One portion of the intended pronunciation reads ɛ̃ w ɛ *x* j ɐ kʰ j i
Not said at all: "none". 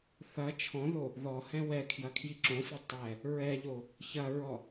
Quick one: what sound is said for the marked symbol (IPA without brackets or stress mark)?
kʰ